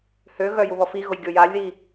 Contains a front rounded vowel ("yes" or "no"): yes